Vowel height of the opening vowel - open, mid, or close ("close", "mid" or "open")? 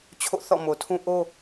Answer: mid